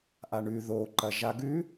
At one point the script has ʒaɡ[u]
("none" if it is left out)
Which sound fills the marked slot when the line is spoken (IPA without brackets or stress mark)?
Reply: ʉ